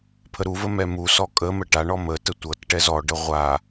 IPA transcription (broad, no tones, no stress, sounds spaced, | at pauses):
pʰ ə ɾ u v ə m ɛ m u s ɔ kʼ ə m ə ʈ a ɳ ɔ m ə t ə tʷ ɤ t ʈ ɛ z ɔ ɖ ə ʁʷ a